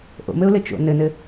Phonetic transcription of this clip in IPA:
ʔo̰mɘʊ̯lɘ t͡ʃo̰ nɘnɘ

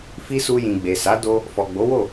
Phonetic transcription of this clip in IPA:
fi˦ su˧jĩ˨ ɡ͡be˨sa˨˦ do˦ | fɔ˨ɡ͡bo˨˦wo˦˨

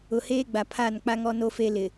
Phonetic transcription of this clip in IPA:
ʊ˨heː˦ɡ͡ba˨ pʰa˦˨n k͡pa˦ŋɔ˦no˦fe˦ lɪ˨

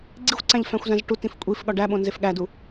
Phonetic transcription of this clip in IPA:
ɡ͡ǀixʷǀæ̃ʎ fæ̃xʷzæ̃zʈutĩf kʷʼif ɠɒɖæɓõ nzefɠædu

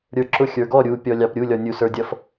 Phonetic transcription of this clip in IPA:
ɾʲə˞ǁʊ xʲə˞ɡɔ ɾʲu pʲɔlʲɑpɾʲu lʲɔnʲusə˞dʲʌf

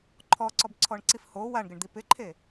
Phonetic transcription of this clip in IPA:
ǃʰɔǀɔbǀʰɔɳǀif ho waɳɡɪɳd̪i pɪǃʰe

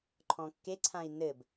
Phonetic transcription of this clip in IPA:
ǃʰɔ̃kːeǀʰãi̯ nɘb

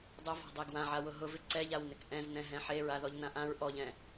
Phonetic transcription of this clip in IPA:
dˤʊvɔ̤dˤe ɡwãʕawʊ ɦʊvɪ ǀɛʎawnɪk ʔɛ̃znɛ̃ ɦɛ̃ħe ɹaðɔʎnãʔãɹ ʔɔʎɛ̃

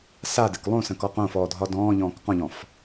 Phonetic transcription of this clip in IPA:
sadɪk lˠõsə̃kɔ qõfɔːdʱɒ dɔ̃ːʎɔ̃ːk qɔ̃ʎɔ̃f

